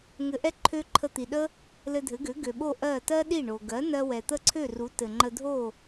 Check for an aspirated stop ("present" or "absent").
present